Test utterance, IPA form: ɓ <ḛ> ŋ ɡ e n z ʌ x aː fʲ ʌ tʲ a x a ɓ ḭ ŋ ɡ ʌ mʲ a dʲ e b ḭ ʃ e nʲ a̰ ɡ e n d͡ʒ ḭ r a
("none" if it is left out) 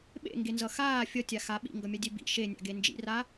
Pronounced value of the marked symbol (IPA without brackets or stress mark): ḛ